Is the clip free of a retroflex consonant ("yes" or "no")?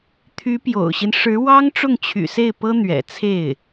no